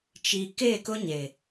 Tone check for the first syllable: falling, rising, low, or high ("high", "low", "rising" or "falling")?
low